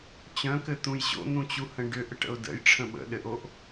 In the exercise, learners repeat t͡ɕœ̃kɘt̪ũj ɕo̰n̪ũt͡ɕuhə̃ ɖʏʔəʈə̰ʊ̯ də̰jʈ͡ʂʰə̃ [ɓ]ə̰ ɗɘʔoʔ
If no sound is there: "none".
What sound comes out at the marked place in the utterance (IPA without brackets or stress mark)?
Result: ɓ